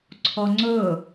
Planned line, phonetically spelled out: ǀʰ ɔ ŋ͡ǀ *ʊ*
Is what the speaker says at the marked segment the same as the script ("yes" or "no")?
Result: yes